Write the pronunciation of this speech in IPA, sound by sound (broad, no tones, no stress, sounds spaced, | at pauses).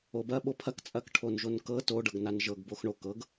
o b ɐ ɓ o pʰ ɐ k t͡sʼ ɐ k ʈʰ o n ʒ o n k ɤ t o ɖ ɤ ɡ n a n ʒ ɤ ɡ b o x ɳ o k ɤ ɡ